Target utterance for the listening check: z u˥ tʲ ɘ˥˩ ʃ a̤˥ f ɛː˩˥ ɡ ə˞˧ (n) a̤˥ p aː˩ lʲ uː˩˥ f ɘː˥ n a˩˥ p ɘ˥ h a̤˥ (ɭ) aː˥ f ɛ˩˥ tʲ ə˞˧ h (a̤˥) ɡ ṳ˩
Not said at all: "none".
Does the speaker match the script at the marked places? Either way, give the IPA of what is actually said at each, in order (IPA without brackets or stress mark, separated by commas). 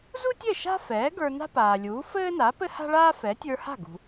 n, ɭ, a̤˥˩